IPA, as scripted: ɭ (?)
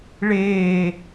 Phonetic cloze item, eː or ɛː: eː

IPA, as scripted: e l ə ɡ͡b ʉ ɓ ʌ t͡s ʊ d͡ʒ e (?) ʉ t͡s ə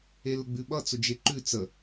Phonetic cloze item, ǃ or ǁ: ǃ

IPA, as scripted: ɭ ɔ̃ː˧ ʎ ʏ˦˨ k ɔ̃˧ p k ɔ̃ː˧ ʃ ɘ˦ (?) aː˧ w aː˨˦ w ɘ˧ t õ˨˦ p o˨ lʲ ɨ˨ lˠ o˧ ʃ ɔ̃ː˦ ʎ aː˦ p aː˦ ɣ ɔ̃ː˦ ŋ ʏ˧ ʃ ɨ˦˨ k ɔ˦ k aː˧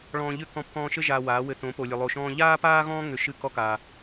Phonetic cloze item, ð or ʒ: ʒ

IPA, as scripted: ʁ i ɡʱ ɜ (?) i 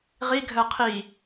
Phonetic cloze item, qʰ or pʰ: qʰ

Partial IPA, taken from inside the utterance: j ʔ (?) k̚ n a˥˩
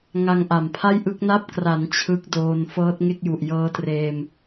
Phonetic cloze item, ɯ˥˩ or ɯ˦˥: ɯ˦˥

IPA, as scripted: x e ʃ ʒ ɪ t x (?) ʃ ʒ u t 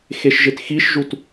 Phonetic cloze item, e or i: i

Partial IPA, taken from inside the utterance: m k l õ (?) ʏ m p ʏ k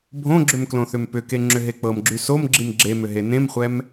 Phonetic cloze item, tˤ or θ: θ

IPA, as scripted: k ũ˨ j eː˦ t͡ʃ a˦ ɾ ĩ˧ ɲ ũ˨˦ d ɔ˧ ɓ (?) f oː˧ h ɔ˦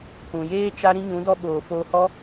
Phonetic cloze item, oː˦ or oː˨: oː˨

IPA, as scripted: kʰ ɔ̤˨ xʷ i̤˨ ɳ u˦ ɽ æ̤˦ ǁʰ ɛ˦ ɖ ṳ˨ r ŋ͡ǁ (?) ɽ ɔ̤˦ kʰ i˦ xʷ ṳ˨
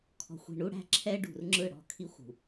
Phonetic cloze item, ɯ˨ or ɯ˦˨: ɯ˦˨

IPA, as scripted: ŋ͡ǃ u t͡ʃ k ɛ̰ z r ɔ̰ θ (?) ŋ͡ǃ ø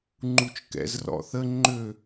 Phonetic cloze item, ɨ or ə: ə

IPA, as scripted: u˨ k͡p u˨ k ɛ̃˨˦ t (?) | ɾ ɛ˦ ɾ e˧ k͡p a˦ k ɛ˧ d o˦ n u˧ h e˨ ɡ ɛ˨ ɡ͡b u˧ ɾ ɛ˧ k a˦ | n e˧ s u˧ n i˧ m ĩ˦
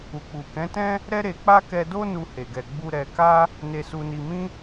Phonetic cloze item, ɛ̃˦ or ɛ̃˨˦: ɛ̃˦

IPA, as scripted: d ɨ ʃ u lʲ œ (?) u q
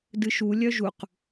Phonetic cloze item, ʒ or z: ʒ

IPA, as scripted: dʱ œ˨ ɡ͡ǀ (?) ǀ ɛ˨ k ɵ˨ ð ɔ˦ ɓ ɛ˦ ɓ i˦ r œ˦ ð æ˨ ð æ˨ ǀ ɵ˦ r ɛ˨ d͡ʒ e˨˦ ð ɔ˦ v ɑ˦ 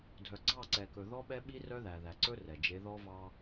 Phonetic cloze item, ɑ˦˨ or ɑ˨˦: ɑ˦˨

